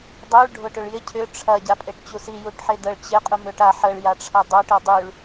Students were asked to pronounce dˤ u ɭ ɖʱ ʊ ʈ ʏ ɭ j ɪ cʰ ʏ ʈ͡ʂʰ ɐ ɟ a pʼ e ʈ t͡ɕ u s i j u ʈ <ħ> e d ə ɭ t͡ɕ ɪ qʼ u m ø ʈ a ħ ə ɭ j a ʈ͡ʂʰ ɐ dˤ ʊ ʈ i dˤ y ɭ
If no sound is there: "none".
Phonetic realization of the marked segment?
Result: ħ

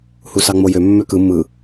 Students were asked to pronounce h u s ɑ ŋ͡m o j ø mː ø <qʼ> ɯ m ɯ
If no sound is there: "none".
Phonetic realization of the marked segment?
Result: k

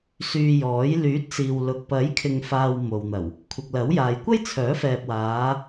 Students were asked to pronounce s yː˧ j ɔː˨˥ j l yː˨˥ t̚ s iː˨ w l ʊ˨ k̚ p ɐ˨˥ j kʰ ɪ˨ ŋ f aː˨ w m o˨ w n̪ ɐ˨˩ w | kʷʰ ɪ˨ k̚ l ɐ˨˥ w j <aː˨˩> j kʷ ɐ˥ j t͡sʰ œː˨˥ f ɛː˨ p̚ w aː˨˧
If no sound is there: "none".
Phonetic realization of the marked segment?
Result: aː˨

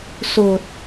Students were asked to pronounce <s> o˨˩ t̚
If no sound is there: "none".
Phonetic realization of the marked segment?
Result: s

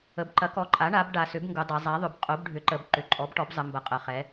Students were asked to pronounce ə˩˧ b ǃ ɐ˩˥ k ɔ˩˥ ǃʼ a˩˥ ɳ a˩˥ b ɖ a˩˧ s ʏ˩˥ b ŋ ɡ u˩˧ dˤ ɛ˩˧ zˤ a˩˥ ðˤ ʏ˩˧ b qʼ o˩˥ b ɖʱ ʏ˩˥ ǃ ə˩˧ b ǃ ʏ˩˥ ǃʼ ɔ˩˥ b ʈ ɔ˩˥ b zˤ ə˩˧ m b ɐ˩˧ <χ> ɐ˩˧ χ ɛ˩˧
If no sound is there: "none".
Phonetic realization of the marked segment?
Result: qʼ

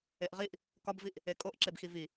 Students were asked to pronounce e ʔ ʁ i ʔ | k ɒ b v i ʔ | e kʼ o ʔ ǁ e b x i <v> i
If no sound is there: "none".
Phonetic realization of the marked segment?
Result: v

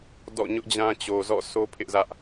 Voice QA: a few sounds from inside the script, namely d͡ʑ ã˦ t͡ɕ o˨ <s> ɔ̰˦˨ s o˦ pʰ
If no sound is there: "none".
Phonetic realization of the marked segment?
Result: z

